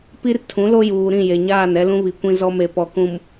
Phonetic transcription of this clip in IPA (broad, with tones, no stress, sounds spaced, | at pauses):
p i˦ r tʰ ũ˨˦ l o˦ j uː˨ ɾ ĩ˦˨ j e˨ ɲ aː˦˨ n ɛ˦ l ũ˦ β i˨ kʷ ĩ˦ z ɔ˦ m e˨ p ɔ˨ k ũ˨ m